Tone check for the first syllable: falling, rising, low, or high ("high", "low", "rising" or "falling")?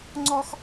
high